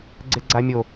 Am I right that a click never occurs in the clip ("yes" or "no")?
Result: no